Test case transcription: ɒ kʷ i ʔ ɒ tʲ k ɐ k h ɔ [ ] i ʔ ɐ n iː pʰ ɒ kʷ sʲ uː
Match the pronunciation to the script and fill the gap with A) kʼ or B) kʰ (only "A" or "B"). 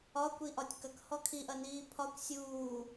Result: B